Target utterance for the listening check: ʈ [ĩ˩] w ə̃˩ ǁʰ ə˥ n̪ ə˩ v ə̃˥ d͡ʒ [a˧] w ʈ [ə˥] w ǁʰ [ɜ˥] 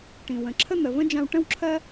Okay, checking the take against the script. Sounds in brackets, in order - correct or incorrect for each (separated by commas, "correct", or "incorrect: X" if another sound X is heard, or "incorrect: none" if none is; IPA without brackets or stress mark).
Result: correct, incorrect: ã˧, incorrect: ə̃˥, correct